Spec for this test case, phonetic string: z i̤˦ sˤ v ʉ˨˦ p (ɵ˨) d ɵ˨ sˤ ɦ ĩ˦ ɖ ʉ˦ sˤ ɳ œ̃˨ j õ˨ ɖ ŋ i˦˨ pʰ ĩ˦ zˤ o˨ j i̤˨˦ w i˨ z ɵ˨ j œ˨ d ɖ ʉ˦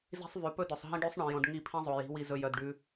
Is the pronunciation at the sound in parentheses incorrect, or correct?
incorrect